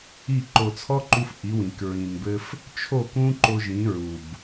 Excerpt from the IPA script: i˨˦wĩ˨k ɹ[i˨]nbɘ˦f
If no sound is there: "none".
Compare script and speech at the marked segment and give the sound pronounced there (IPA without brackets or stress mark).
ĩ˨